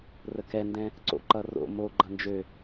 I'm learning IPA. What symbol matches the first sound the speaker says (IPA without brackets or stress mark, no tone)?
r